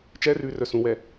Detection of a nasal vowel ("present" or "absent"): present